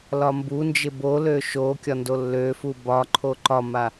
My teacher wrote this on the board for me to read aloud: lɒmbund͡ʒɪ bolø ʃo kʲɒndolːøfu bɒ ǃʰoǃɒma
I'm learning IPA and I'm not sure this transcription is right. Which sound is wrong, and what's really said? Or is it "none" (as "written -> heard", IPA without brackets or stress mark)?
none